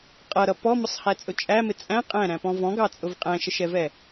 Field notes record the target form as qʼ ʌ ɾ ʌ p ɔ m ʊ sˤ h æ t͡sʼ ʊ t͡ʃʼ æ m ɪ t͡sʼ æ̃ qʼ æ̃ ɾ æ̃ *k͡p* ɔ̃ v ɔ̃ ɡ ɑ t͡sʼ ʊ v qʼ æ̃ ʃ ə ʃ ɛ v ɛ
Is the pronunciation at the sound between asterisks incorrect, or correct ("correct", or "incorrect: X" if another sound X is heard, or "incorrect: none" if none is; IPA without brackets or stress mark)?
incorrect: p